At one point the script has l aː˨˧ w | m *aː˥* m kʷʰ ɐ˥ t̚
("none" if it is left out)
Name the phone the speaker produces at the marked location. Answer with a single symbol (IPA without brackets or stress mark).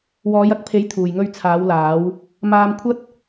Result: aː˧